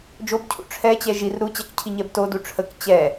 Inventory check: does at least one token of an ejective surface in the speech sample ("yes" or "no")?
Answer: no